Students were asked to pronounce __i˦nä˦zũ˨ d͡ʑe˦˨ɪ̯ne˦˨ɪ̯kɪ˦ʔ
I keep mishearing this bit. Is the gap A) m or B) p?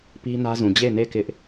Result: B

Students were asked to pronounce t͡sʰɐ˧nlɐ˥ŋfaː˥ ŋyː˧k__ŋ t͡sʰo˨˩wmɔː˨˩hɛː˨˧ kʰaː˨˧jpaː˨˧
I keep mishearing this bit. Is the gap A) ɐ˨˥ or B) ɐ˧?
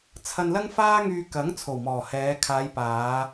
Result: A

